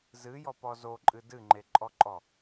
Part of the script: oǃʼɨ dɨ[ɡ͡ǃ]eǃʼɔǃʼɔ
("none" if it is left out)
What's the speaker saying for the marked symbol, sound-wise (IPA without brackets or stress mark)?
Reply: ŋ͡ǃ